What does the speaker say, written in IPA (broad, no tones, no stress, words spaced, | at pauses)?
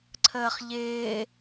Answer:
ǀʰəːχʎɪː